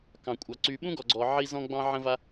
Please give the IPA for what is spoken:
k ɑ̃˩ kʷʼ ɑ˩ ǀ y˨ ɓ ũ˥ ɡ ɔ˨ ɡ͡ǀ ɔ˨ ʕ i˦ z ɔ̃˦ ɡ͡b ɑ̃˦ ʕ ə̃˦ v a˦

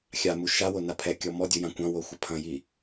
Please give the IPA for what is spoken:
xʲ a m u ʃ a w o n a pʰ ɛ kʲ ɔ m ɔ dʲ u j ã kʷ ɐ̃ w o xʷ ɐ pʰ ɐ̃ j i

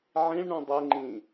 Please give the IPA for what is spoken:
ʕ ĩ ɭ ɳ ũ dˤ e ŋ͡ǃ ĩ

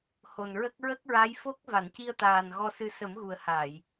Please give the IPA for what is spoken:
h o˨˩ n ɹ ə˦˥ k̚ ɹ ə˦˥ k̚ ɹ a˧˥ j f o˦˥ k̚ v a˨˩˨ n c i˧ ə̯ t̪ aː˨˩ n ɣ ɔ˧ s ɨ˧ s ə˨˩˦ m ɣ u˨˩ ə̯ h a˨˩˨ j

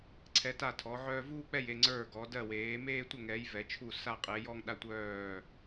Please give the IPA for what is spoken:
ǀʰ ɛ˨˦ t a˦˨ tʰ ɔ˨˦ ʕ œː˦ v uː˦ k͡p ɛ˦˨ j e˦˨ ŋ͡ǀ ə˞˦˨ ɡ ɔ˨˦ d ɜ˦˨ w eː˨˦ m eː˦ tʷ ə˦˨ ŋ ɛ˨˦ j v ɛ˨˦ t͡ʃʰ u˦˨ s a˦˨ qʼ e˨˦ j ɔ˦ ŋ ɗ a˦ tʷ œː˦˨

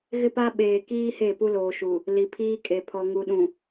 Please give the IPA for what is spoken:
ɣ ɪ˦ p a˦ ɓ eː˨ k iː˦ h e˦˨ p u˦ l oː˨ ʃ u˨ | l i˨ pʰ iː˦ kʼ e˨ pʰ ɔ˨ ŋ u˨ ɗ ũ˨

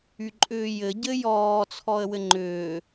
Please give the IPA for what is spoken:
y ǃʼ ʏː j ɘ ɟ ɘ j ɔː t͡sʰ ɔ ə̯ w ɘ ŋ͡ǃ ʏː

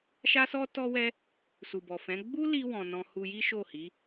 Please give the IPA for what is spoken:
ʃ a˧ s ɔ˧ t ɔ˧ w ɛ˧ | s u˨ b ɔ˨ f ɛ̃˨˦ ɡ͡b u˦ l i˧ w ɔ̃˨ n ɔ̃˧ h u˧ j i˦ ʃ o˦˨ h i˨˦

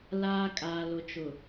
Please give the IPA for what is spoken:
l aː˦ kʼ aː˨ l ʊ˨ t͡ʃ ʊ˨

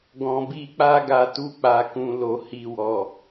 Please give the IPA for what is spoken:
ɡ ɔ̃˨ b i˧ k͡p a˦ ɡ a˧ t u˧ k͡p a˨ k ũ˨ l o˨ h i˨ w ɔ˨

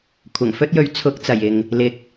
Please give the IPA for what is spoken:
kʷʰ ɐ˨˩ ŋ f ɵ˥ t̚ j ɵ˨˥ ɥ t͡sʰ ʊ˨˥ k̚ t͡s ɐ˨˩ j ɪ˨ ŋ | l ɪ˨˥ k̚

